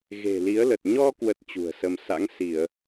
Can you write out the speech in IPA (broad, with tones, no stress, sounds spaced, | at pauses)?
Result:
ɣ e̤˨˩ l i˨˦ ə̯ l ə˨˩ t̚ ɲ ɔ˧ k w ə˦˥ t̚ t͡ɕ ṳ˨˩ ə̯ s ə˧ m s a̰˧˥ ŋ s i˧˩˨ ə̯